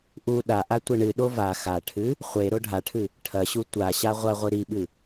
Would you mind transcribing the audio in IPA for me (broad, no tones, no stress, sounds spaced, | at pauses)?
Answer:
ʔ u ɗ a ʔ a tʷ ɐ ɳ ɨ ɗ o v a x a ʈʰ ɨ | χʷ e ɾ o ɖʱ a ʈʰ ɨ | ʈʰ ɐ ɕ u tʷ a ɕ a ʁʷ ɐ ʁʷ ɨ ɾ i ɓ ɨ